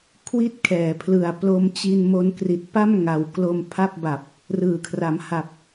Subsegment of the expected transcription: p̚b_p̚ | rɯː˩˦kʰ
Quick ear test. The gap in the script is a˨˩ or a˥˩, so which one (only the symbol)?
a˨˩